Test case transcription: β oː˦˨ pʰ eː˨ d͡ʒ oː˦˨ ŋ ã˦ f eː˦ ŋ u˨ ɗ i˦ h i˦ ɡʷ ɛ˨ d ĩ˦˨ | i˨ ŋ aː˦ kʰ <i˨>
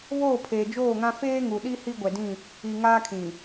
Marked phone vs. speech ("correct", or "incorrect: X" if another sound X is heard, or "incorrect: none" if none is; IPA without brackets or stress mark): incorrect: ĩ˨